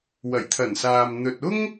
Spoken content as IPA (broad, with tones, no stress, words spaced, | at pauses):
wɐ˨˩jt̪ʰɐ˨˩nsaː˨m n̪ɵ˧t̚ ʊ˥ŋ